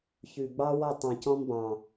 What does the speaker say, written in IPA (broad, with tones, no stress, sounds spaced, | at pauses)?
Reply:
ç ʉ˨ ɡ͡b ɑ˦ w ɔ˦˨ tˤ ɑ̃˨ c ɔ̃˦ m b ɑ̃˨